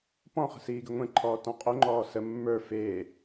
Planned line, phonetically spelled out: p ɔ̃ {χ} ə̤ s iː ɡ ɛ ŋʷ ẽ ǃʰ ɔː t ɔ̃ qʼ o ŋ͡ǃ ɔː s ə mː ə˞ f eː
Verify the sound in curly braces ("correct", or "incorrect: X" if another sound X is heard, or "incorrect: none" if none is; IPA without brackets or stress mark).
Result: correct